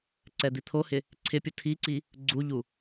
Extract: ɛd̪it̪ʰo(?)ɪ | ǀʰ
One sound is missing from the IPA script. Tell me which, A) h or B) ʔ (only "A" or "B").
A